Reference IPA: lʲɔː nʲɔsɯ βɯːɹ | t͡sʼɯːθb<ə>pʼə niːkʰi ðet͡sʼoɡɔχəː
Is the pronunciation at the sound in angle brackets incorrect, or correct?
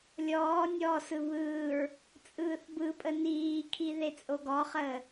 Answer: incorrect